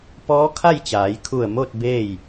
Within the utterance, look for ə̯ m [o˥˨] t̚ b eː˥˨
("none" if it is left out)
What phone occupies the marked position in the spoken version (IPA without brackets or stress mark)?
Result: o˥˨